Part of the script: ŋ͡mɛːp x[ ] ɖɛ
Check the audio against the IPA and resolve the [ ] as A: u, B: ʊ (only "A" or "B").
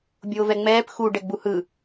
A